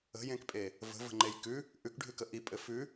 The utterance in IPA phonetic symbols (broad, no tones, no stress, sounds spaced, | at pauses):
ə̤ j ẽ k pʼ e | v ə̤ v ə̤ ŋ͡ǃ e j k ʉ | ʔ ʉ k ɖʱ ʉ k ə ʔ i pʼ ɘ f ʉ